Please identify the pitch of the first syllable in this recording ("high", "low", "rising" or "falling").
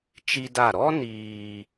high